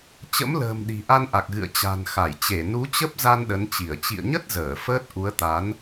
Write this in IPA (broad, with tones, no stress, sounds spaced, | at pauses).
t͡ɕ ə̰˧˥ m l ə̤ː˨˩ m ɗ i̤˨˩ ʔ a˧ n ʔ a˨˩ k̚ ɣ ɨ̰˧˨ ə̯ t͡ɕ a̤˨˩ n x a˧˩ j t͡ɕ e˧˩ n u˨˦ t͡ɕ ə˦˥ p̚ z a˧ n ɗ ə˨˦ n t͡ɕ i˧˩ ə̯ t͡ɕ ḭ˧˨ ə̯ ɲ ə˦˥ t̚ z əː˧˩ f əː˦˥ t̚ ʔ u˨˦ ə̯ t̪ a˨˦ n